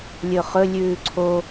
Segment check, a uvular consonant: present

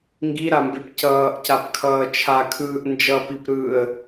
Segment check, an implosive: absent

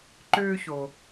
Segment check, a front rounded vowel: present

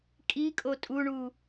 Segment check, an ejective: present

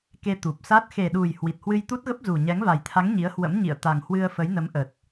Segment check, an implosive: present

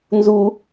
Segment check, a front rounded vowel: absent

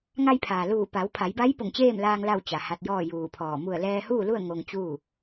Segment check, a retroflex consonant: absent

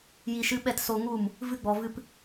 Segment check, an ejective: absent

